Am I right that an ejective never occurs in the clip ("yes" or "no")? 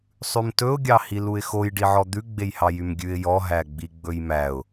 yes